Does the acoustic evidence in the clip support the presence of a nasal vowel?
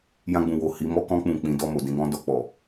yes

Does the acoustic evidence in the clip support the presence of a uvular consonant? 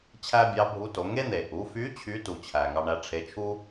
no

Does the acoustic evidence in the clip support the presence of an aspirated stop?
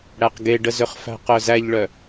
no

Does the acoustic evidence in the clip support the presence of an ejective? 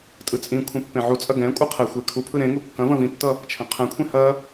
yes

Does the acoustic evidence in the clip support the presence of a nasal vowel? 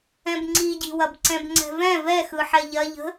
yes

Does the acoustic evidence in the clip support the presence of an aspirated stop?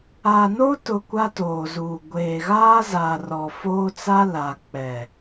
no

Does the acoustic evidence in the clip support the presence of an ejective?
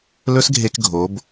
no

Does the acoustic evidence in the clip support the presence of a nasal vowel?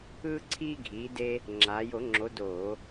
no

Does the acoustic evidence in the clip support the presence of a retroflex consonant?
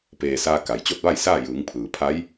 no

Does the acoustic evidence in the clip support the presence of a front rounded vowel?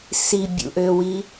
yes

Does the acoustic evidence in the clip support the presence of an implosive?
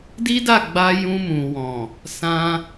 no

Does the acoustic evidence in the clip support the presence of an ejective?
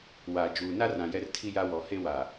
no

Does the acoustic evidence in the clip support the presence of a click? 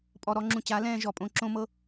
yes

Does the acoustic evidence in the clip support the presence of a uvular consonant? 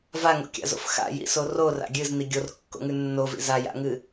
no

